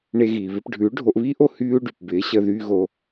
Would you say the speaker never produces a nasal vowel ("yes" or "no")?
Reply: yes